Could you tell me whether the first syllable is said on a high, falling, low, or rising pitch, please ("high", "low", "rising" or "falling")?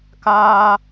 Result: high